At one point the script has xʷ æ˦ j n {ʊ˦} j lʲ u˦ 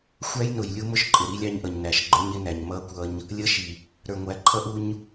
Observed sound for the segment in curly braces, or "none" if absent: ʊ˨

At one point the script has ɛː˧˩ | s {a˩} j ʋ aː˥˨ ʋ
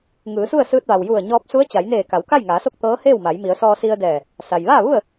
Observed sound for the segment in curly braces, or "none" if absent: a˩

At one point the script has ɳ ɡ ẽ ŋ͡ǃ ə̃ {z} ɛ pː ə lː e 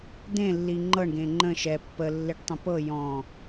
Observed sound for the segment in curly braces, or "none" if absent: ʃ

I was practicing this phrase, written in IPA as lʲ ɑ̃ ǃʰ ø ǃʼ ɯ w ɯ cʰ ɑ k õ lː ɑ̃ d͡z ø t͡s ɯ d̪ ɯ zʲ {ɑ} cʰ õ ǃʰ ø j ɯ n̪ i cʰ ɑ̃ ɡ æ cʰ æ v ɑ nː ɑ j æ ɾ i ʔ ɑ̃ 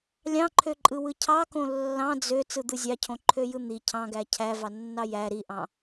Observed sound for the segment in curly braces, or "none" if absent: ɑ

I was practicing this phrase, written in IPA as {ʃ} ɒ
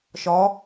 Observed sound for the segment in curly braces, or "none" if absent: ʃ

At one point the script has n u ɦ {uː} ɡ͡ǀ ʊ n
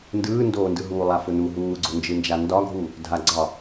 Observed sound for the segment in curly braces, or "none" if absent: uː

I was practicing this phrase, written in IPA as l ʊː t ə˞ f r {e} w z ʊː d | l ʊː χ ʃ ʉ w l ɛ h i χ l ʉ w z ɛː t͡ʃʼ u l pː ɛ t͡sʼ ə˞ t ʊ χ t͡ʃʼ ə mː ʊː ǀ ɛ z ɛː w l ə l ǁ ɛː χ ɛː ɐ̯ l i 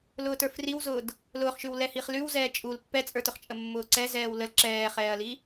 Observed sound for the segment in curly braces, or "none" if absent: i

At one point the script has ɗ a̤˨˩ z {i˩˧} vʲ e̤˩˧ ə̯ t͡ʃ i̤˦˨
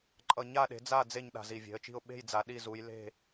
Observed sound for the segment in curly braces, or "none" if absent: i˨˩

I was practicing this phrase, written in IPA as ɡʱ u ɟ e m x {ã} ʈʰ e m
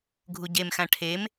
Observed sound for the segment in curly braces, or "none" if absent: ã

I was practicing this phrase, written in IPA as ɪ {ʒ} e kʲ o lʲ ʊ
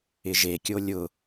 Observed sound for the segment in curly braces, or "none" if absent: ʒ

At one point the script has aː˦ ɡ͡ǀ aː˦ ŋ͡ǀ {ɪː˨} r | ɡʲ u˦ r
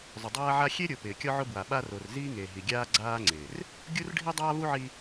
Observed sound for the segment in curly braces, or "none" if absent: ɪː˨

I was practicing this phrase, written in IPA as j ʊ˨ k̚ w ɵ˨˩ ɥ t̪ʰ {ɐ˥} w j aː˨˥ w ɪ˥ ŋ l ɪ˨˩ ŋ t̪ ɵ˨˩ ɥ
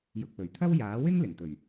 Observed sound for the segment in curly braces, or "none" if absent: ɐ˥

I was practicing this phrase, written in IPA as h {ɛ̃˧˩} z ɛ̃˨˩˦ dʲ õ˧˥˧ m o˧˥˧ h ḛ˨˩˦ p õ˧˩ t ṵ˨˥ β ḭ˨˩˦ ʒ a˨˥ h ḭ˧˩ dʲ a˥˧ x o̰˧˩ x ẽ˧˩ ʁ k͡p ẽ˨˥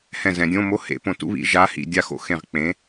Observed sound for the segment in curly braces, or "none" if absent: ɛ̃˧˩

